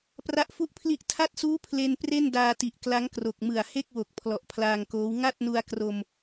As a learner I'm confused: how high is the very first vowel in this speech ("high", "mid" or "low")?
low